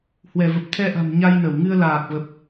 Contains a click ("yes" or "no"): no